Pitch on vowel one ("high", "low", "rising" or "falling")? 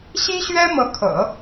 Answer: high